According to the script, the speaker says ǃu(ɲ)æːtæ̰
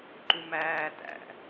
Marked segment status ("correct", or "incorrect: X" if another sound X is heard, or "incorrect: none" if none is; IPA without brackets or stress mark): incorrect: m